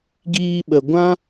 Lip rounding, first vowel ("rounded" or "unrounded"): unrounded